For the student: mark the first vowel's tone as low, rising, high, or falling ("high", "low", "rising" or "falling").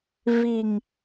low